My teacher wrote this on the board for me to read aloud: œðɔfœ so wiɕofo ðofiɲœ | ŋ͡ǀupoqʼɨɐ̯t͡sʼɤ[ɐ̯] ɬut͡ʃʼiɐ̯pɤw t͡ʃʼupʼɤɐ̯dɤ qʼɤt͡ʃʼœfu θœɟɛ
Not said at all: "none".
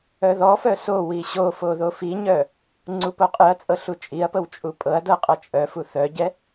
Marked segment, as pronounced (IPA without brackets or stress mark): none